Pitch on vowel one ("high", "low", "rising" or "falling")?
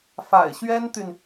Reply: low